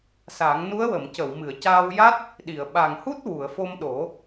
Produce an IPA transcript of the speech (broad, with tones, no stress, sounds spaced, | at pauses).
s a˨˩˦ ŋ n u˧˥ ə̯ w ə˨˩˨ m c ə˨˩˨ w m ɨ˨˩˨ ə̯ c aː˧ w j a˦˥ t̚ | ɗ i˨˩˨ ə̯ ɓ a˨˩ ŋ h u˦˥ t̚ w u˨˩˨ ə̯ f o˧ m ɗ o˨˩˦